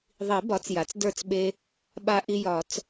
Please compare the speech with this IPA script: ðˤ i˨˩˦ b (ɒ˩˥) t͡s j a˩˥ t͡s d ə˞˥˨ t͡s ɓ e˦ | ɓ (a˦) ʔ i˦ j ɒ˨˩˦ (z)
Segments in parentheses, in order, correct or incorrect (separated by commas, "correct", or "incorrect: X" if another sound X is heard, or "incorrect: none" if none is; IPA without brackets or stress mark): correct, correct, incorrect: t͡s